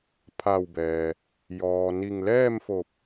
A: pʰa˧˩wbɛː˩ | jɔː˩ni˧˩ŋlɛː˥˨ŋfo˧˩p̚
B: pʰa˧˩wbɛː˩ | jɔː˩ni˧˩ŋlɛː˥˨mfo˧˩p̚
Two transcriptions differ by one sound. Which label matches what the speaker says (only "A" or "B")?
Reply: B